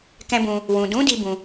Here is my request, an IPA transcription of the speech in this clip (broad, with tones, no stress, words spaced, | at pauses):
kɛ̃˦bũ˧ | wũ˨dũ˨˦ di˦bũ˧